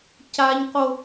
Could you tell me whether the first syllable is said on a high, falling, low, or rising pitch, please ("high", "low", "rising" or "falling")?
high